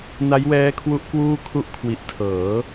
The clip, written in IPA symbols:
n a˦˥ j w ɛː˦˥ kʰ w u˦˥ ʔ k w uː˥˩ kʰ u˦˥ ʔ kʰ w i˨˩ ʔ tʰ ɤː˩˦

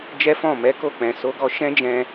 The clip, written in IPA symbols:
d͡ʒ ɛ˦ f ɔ̃˦˨ m ɛ˨˦ k o˦˨ k͡p ɛ̃˨ s o˨˦ ɡ ɔ˧ ʃ ɛ̃˦ d͡ʒ ɛ̃˧

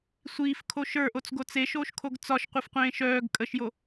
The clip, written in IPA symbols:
sʷ iː f kʰ o ʃ ə˞ ʔ o t͡s ɡ o t͡s e ʃ oː ʃ kʰ o ɡ t͡s ɒ ʃ qʷ e f qʷ ẽː ʃ œː ɡ kʼ ə ʃ j o

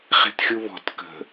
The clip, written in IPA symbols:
χ e̤ t xʲ u β ɔ̤ t k ə̤

